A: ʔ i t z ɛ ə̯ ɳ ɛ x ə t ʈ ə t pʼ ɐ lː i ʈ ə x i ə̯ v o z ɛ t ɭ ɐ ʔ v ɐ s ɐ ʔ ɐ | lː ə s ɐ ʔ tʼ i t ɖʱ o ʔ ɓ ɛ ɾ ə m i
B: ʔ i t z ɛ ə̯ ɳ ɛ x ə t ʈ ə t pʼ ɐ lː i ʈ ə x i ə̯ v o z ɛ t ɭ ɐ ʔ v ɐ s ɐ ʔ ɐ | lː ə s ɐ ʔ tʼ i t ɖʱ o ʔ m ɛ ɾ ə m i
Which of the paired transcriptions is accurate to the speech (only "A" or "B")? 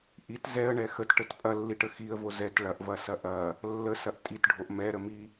B